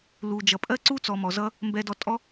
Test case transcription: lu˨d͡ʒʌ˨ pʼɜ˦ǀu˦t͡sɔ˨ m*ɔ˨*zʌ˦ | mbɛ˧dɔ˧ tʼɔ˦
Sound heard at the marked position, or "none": ɔ˨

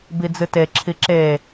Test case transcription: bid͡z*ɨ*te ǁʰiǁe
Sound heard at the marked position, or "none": ɨ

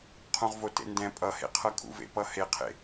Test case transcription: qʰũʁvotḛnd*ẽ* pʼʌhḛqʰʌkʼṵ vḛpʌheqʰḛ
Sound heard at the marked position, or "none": ɛ̃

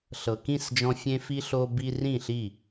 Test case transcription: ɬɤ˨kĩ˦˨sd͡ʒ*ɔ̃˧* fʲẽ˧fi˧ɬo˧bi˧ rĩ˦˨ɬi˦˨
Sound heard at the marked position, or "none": ɔ̃˧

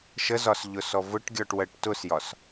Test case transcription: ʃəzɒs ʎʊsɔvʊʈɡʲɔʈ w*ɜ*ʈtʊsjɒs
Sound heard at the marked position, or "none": ɜ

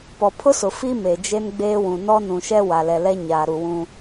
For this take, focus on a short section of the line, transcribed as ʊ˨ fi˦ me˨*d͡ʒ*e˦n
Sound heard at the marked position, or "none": d͡ʒ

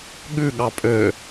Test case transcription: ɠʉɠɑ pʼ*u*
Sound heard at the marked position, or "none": ø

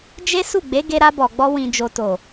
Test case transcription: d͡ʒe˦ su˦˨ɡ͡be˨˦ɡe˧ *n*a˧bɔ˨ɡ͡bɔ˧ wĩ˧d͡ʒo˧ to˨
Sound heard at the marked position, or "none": ɾ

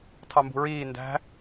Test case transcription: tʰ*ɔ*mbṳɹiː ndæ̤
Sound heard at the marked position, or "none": ɑ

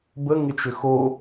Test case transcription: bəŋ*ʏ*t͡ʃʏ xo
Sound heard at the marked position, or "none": ɪ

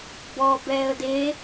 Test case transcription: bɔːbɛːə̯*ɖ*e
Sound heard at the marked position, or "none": d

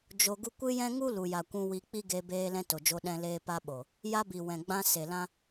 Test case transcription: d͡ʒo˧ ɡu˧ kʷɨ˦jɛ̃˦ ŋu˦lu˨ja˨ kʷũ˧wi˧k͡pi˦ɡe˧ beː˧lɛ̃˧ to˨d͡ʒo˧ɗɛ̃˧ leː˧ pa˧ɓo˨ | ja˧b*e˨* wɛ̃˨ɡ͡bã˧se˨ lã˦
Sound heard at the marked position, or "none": i˨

